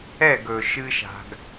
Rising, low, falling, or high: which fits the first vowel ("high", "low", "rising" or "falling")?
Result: falling